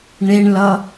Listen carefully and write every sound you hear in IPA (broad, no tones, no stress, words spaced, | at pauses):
ɳeɳlʌ